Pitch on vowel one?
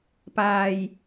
low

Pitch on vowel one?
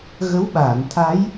rising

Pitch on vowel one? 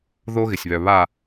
high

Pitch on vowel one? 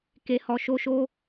low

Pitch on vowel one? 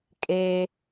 high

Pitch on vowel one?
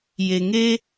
low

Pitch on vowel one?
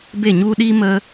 falling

